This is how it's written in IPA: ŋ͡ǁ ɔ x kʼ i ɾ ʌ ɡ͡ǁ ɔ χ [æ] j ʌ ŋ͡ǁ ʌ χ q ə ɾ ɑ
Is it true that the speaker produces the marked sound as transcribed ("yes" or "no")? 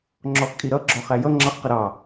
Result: yes